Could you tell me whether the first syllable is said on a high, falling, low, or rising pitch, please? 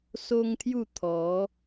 high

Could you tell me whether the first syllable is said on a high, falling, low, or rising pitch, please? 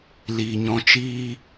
low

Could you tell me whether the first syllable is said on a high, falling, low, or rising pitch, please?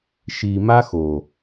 low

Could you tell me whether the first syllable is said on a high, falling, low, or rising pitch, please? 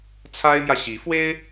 high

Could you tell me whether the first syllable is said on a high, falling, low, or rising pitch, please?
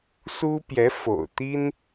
high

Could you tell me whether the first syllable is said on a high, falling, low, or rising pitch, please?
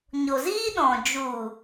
low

